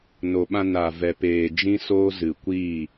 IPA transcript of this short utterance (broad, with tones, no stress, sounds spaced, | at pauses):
n o˨ ɓ ã˧ n a˨ v ɛ˨ p eː˨ d͡ʒ ĩ˦ s oː˦ z ɨ˨ kʷ iː˦˨